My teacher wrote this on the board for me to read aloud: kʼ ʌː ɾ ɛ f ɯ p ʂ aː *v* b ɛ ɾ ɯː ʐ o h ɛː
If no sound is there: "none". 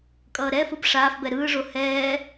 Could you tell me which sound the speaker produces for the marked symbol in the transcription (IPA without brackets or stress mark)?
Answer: f